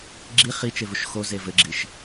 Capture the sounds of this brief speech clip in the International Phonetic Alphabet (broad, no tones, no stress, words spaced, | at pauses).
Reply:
ɡ͡ǁi χit͡ʃevuʃ xoze vɘɡ͡ǁiʃ